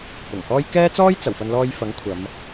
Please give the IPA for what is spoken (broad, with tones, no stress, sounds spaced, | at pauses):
p ʊ˨˩ ŋ h ɔː˥ j k ɛː˥ t͡s ɔː˥ j t͡s ɐ˨˩ w f ɐ˧ n l ɔː˧ j f ɐ˨˥ ŋ kʷʰ ɐ˨˧ m